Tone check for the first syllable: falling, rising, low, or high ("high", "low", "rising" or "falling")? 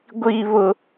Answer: high